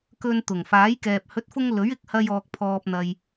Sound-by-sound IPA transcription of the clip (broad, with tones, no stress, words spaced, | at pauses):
kɵ˧nt̪ʊ˨˩ŋ faː˨˥jkɛː˨p̚ hɵ˨˥t̚fʊ˧ŋ lɵ˨˥ɥɪ˨˥k̚ hɐ˧jɔː˨k̚pʰɔː˨p̚ n̪ɐ˨j